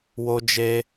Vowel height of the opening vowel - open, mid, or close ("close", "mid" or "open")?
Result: mid